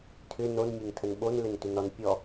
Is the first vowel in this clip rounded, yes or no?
yes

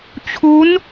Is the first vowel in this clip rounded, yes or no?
yes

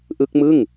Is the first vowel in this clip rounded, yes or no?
no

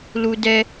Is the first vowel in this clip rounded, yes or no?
yes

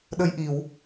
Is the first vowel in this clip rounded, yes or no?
no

